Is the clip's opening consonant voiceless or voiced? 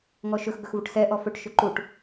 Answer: voiced